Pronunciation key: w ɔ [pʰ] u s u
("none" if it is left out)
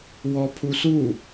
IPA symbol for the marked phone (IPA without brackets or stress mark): pʰ